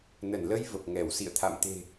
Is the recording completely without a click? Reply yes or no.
yes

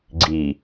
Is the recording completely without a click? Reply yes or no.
no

